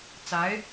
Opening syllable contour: rising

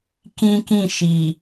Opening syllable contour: high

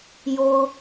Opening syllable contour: high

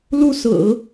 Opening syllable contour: falling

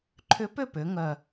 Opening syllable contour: rising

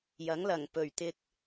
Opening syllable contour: rising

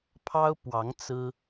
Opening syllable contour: high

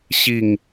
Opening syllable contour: falling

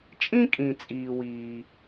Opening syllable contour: high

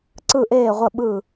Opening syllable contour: falling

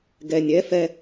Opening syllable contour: low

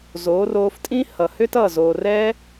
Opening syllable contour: rising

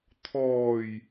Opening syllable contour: low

